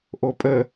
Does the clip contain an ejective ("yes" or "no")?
yes